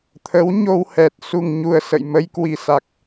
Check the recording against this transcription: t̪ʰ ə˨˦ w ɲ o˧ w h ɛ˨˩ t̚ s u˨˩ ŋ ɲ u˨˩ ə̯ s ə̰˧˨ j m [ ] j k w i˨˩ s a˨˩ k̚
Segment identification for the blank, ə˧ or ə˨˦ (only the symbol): ə˧